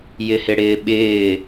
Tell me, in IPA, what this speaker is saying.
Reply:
jɪhɪɽɪːɓɪː

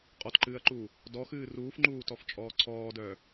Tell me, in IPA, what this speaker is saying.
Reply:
qʼɔtǃɨːɐ̯ǃuː | dɔxɨː ruːfŋ͡ǃuːtɔft͡ʃʼɔː ǀʰɔːdœː

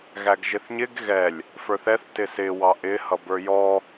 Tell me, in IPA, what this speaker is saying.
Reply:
ɣæɡʒɪθɲɪɡ ɣɛlʲ | fə˞θɛθ tɪsɪ wɑʔɪ hʌbə˞jɔ

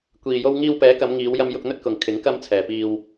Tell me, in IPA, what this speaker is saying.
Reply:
kʷiː˨jo˧w ŋiː˧wpɛː˨˥kɐ˨˧mŋiː˨˧w jɐ˧mjʊ˧k̚n̪ɵ˧t̚kʊ˨ŋ kʰɪ˨˥ŋ kɐ˧mt͡sʰɛː˨piː˧w

